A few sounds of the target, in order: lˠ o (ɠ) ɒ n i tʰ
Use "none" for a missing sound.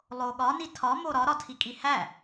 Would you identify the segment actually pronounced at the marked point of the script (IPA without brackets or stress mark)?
ɠ